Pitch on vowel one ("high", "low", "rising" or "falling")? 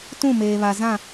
falling